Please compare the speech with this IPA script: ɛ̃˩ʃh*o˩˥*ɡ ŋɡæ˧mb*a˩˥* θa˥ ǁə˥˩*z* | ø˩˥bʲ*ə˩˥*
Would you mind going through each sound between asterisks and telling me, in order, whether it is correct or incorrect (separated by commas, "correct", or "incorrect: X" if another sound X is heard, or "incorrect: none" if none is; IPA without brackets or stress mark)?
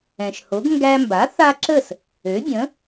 correct, correct, incorrect: s, incorrect: ə̃˩˥